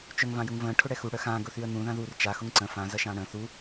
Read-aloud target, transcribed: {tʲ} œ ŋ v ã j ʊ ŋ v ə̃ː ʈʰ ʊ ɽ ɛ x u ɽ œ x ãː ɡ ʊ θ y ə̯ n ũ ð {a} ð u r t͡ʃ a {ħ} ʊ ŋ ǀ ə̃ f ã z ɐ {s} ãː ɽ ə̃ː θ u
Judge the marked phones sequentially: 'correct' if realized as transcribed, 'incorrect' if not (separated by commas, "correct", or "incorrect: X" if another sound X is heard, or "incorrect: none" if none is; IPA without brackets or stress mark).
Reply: incorrect: t͡ʃ, incorrect: ã, incorrect: x, incorrect: ʃ